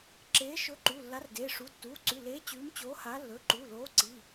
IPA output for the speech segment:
ǁeː˨˥ ʃɵ˨˥ ǃu˩˧˩lːa˨˥rdeː˩˧˩ʂu˩˧˩ tːuː˩˧˩ǀʉ˩˧˩ leː˨˥ t͡ɕʉː˨˥mt͡ɕoː˨˥ha˨˥ lːɵː˩˧˩ǃuː˩˧˩loː˨˥ǀi˩˧˩

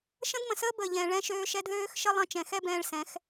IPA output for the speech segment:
ʃə̃˦dmə̃˨səː˦ bəː˨ʎɛ̃ː˨ ɭɛ̃˧ʃøː˧ʃɛ˧d ðøː˦xʃə˦ lˠə̃˧ t͡ʃɛ̃˨xɛ˦bɛ̃ː˧ɭsɛ̃˨˦x

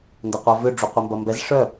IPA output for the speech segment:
ndɐqʷœvʏ ɖ͡ʐuqʷimbɐmbɛz ʂœ

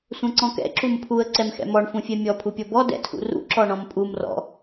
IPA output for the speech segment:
sʷɛ̃ǀɔ̃kɛ̰ ǁumpʰuə̯ ǀɛmxɛ̰mɔɳ fũfʲɛmʲɔ pʰupʲɔbɔ dɛ̰tʰṵrṵ ǁɔɳɔ̃mpʼum rɔ̰

